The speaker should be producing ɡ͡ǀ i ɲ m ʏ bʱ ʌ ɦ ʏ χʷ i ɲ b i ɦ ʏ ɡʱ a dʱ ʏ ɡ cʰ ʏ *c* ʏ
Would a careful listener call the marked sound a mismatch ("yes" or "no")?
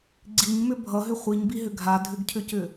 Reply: no